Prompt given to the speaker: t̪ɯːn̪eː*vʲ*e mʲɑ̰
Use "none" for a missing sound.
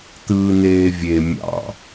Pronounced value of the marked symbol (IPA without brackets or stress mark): vʲ